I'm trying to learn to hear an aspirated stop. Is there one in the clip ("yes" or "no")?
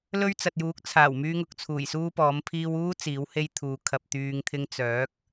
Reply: yes